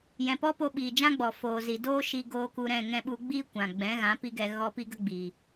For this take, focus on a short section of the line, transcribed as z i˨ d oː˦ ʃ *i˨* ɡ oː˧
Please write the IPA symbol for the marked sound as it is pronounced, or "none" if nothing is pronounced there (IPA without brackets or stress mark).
i˧